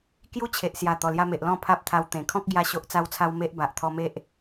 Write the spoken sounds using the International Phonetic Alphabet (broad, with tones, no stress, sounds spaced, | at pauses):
k j u˦ t͡ɕʰ e˨ ʔ s j a˨˩ t̪ ɔ˨˩ l j a˧ m e˨ ʔ l ɔ̃˥˧ pʰ a˦ p̚ t̪ʰ a˧ w t̪ ẽ˨˩ kʰ ɔ̃˦ k̚ ɡ j a˧ ɕ o˦ ʔ t͡s a˦ w t͡sʰ a˦ w m e˦ ʔ b a˨ ʔ t̪ʰ ɔ˧ m e˦ ʔ